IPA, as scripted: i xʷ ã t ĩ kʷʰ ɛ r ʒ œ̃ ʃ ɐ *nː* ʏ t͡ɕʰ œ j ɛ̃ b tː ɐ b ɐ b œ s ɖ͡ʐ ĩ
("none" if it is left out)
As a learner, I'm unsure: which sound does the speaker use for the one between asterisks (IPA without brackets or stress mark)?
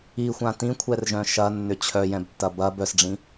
nː